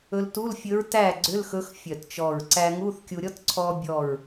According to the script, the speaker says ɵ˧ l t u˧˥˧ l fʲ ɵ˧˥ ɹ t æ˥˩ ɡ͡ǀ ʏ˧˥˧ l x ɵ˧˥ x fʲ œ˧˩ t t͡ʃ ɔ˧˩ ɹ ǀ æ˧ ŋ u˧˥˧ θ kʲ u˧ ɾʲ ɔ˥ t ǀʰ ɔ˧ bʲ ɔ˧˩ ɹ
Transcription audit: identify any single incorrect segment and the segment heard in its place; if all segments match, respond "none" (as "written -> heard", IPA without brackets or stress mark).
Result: none